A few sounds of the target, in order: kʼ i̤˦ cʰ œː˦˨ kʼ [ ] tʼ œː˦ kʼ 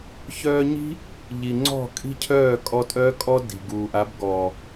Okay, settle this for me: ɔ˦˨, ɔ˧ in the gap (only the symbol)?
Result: ɔ˧